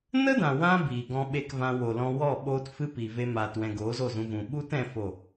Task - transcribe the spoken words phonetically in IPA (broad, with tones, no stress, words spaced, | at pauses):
nə˦dã˨wã˧ biː˨ɡɔ̃˧ɓe˧k vã˧wo˨lɔ̃˧ wɔ˦˨ɓoː˦tfɨ˦pi˨ ve˧maː˨twɛ̃˨ ɡoː˨˦zo˦˨zũ˧vũ˨ ɓu˦tɛ̃˧ fo˦˨